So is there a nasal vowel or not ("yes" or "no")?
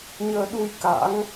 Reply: no